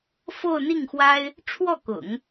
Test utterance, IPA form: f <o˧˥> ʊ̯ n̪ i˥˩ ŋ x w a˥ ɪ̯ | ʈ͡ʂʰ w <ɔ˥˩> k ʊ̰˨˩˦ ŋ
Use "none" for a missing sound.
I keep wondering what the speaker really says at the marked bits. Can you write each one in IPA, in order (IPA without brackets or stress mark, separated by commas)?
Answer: o˥˧, ɔ˥˩